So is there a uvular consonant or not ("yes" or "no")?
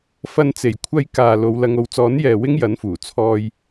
no